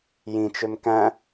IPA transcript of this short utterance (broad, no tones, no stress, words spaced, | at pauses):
jĩt͡ʃøm kæ̃